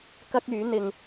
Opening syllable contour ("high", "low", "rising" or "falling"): high